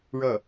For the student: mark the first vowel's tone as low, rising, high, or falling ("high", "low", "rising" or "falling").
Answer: falling